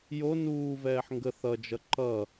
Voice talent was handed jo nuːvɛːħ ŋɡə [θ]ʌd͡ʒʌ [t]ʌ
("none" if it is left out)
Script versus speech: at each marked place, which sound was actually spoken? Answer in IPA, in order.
θ, ǃ

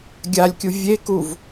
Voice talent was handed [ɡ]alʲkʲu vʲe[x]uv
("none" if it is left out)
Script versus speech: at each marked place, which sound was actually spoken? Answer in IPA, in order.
ɡʲ, k

